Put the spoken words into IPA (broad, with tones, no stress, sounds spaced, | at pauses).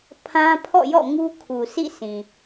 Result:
pʰ ã˦ pʰ ɔ̰˦˨ j ɔ̰˦˨ ŋ u˦ kʰ u˨ s ḭ˦˨ s ĩ˨